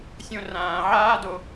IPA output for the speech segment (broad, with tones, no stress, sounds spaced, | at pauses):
sʲ õ˧ r ãː˨ ʕ aː˦ d o˧